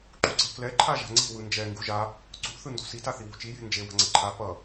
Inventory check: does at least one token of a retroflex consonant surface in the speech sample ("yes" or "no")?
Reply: no